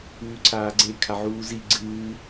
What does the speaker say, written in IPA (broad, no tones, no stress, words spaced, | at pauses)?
ʉːǀʰaːɡ͡ǀe kʰaʕuːzi ɡ͡ǀɨː